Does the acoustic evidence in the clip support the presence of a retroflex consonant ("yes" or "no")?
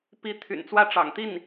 yes